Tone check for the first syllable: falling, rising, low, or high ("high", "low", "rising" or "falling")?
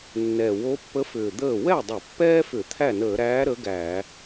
low